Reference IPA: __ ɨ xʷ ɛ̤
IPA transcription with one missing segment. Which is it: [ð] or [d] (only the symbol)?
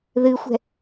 ð